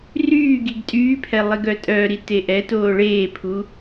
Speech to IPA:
r yː ɡ i ɡ tʼ yː pʰ ɛ lˠ i ɡ œ tʼ œ ɾ i t e ʔ ɛ t oː ɭ eː pʰ u

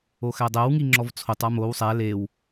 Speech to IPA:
o x æ dˤ æ w ŋ i ŋ͡ǁ ɔ v t͡sʰ o tˤ a m o w sˤ æ l e w

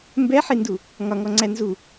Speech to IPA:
m b ɛ ħ i n d u | ŋ ɒ ŋ ɔ ŋ͡ǀ æ n z u

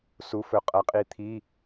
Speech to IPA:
s u˩˧ f ɵ˩˧ qʼ ɐ˩˧ qʼ i˩˧ t̪ʰ i˩˧˩

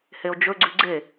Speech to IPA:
h e o̯ d͡ʒ ɵ ɡ͡ǀ ʉ ɡ͡ǀ e

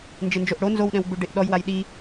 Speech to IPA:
n d͡ʒ ɪ n d͡ʒ o ʔ ɽ o n z o w ɗ ɛ̃ w ɡ͡b u ɖ e ʔ ɗ ɔ j w a j ɗ i

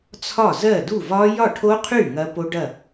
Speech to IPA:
t͡sʰ ɒ˥˩ z ɜ˥˩ d u˥˩ v ɒ˦˥ j ɒ˥˩ ʈʰ o˦˥ qʰ y˥˩ ŋ ɐ˦˥ p o˦˥ ɖ ɐ˥˩

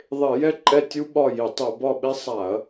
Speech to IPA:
ðˤ e˧˩˧ j ɛ˥ ǃʼ ɛ˦˨ tʲ u˥ ɓ ɒ˦˨ j i˧˩˧ tˤ u˧˩˧ b ɒ˦˨ ɓ e˥ sˤ a˧˩˧ ɐ̯

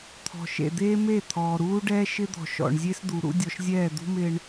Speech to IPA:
t̪ʰ ɔ̤˨ ʃ ḛ˨ d̪ eː˦ m e˦˨ t̪ʰ ɔː˨ ɾ uː˦ ɖ ɛː˦ ʃ ɪ˦ d̪ ɔ̤˨ ʃ ɔ̰˨ ɳ zʲ e˦ s d̪ u˨ ɾ ṵ˦ dʲ ɔ˨ ʃ zʲ ɛː˦˨ d̪ ṳ˦ m ɪː˦ ɳ

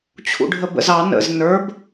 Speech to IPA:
t͡ɕʰ ṵ ɖʱ ə b ə̰ z ɑ n ə̰ z n ə˞ b

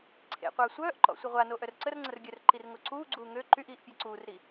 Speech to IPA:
ǀʰ ḛ qʷ œː sʷ œː ʔ ǃ ɔ̰ sʷ ə ʁʷ a n o ʔ œ r ǀ ə r ŋ͡ǀ ə r ɡʲ œ r ǃ i r ŋ o ǀ uː ɡ͡ǀ uː ŋ ø ǃ y ʔ iː ʔ pʲ e ǀ uː r ɾ i

